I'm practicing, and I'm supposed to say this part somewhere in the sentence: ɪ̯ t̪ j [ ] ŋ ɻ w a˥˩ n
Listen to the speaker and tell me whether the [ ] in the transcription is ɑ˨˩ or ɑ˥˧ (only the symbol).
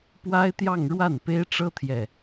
ɑ˥˧